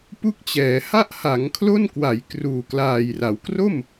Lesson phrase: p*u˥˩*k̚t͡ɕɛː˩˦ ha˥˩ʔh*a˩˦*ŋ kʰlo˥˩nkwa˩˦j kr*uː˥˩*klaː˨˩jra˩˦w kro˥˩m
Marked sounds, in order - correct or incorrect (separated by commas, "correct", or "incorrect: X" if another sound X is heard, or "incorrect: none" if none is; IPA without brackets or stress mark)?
correct, correct, incorrect: uː˨˩